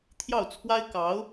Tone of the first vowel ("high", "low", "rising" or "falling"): falling